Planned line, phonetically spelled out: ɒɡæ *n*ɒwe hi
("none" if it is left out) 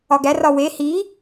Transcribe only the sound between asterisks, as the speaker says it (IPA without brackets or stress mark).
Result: r